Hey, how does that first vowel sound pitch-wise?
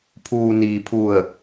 low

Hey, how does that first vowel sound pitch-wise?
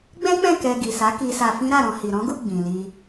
high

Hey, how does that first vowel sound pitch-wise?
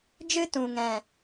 high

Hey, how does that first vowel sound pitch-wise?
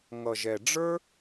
low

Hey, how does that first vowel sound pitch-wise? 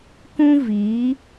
high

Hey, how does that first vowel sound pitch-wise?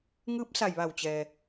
rising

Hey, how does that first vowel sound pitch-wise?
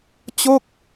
falling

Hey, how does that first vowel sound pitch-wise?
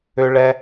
low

